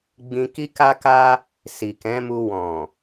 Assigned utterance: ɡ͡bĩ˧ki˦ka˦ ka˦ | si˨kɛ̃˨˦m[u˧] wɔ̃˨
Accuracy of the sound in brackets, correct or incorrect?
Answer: correct